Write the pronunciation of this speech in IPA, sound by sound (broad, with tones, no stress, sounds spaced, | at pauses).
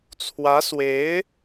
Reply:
t͡sʰ w ä˧˥ s w e˧˥ ɪ̯